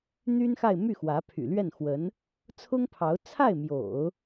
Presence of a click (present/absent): absent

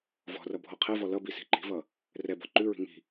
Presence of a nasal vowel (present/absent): absent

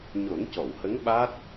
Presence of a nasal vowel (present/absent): absent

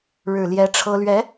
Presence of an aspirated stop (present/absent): present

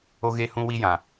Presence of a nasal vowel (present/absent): present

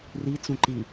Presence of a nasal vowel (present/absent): present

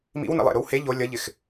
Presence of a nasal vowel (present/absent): absent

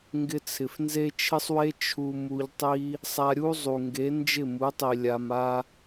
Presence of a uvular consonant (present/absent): absent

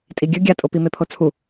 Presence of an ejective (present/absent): present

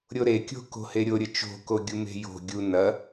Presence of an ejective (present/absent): absent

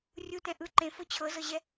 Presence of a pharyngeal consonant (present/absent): absent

